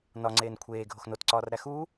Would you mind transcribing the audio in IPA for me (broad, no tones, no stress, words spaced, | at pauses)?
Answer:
nɒŋ͡ǀeːn kʷʰeː ɡʱoxnotǀɒːrɾæ xu